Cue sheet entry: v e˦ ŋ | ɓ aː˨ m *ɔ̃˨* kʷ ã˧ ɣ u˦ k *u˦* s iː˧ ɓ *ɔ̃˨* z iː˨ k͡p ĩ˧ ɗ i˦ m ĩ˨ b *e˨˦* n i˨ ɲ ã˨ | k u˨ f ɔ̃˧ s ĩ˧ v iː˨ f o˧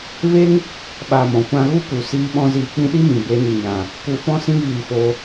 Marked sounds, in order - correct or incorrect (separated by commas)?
correct, incorrect, incorrect, correct